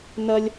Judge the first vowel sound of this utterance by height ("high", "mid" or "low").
mid